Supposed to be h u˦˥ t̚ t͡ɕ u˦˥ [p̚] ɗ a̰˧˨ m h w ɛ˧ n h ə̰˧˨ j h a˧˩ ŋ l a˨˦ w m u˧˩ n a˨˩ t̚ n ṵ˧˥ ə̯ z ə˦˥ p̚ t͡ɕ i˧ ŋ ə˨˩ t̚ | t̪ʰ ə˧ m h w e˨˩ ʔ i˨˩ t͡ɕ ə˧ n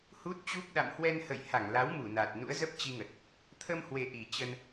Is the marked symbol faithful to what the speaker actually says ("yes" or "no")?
yes